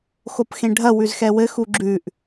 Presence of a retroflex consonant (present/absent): present